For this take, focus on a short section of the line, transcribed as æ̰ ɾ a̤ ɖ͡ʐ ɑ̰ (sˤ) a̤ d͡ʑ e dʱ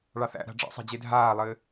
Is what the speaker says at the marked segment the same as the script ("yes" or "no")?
yes